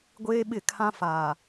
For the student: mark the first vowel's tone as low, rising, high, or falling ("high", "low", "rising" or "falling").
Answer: high